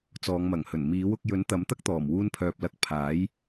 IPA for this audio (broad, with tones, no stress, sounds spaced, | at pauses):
t͡s ɔː˨˧ ŋ m ɐ˨˩ ŋ h ɵ˨˩ n m iː˨˥ w ʊ˧ k̚ j ɵ˨˥ n t̪ ɐ˨˥ m t̪ ɐ˥ k̚ t̪ ɔː˨˩ m w uː˧ n pʰ œː˨ p̚ l ɐ˨˥ k̚ pʰ aː˨˥ j